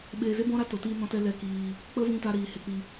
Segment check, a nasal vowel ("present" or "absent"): present